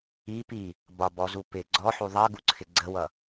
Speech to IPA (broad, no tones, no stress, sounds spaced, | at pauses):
i p i | b ɒ b ɔ z u p ɪ ɡ͡ǀ ɔ ħ u ðˤ ɜ ɡ u ǀʰ ɪ ɡ͡ǀ ə w ʌ